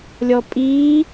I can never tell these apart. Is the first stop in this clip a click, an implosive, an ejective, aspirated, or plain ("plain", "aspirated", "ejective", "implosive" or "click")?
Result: ejective